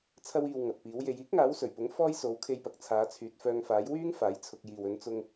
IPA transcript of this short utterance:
t͡sʰɐ˧wiː˨w ŋɐ˨t̚piː˨˥wje˧j iː˥k̚ŋaː˨˥wsɵ˨˩ɥpʊ˨˥ŋ fɔː˥j so˨˥wkʰe˧jpɐ˨k̚t͡sʰaː˨˧ t͡sʰyː˨˥t̚fœː˧ŋfaː˨˥j wyː˥ŋ faː˨˥jt͡sʰʊ˧k̚ jiː˨w ɵ˨˥n t͡sʊ˧ŋ

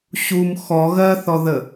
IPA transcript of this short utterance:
ɕum xɔ ɣɜθɔðə

